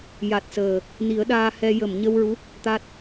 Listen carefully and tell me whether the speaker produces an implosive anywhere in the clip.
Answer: yes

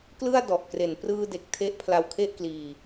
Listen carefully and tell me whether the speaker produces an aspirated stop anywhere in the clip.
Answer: yes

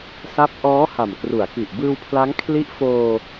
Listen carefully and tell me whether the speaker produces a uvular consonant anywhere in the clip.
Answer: no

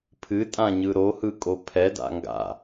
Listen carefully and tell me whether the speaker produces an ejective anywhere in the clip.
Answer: yes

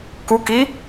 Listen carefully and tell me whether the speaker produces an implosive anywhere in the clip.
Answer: no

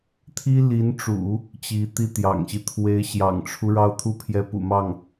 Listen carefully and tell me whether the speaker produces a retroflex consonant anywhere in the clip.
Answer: yes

